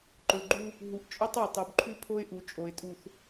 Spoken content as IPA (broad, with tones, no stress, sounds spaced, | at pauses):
ǃ ɵ˨ ɡ͡ǃ u˦ | ɦ u˨ ʔ t͡ʃʼ ɵ˦ tˤ ʉ˨ tˤ u˨ b ǃʰ ʉ˦ pʰ o˦ ɪ̯ ʔ u˨ t͡ʃʼ o˨ ɪ̯ tʼ u˨ θ